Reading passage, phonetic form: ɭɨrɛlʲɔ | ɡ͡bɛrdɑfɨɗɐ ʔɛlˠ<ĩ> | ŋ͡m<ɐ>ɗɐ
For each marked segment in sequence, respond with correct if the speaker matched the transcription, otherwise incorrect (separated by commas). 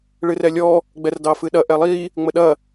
incorrect, incorrect